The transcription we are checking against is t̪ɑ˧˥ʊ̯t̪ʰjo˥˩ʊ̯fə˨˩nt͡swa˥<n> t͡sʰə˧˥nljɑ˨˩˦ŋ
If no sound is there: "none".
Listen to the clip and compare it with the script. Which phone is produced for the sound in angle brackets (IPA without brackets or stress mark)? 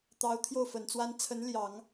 n